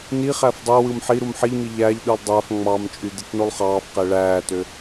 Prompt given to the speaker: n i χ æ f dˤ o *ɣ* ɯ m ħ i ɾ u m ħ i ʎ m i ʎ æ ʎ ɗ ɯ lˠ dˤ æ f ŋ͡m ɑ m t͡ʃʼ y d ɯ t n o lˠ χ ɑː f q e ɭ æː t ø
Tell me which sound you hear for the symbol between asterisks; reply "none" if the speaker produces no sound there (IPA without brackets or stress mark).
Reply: w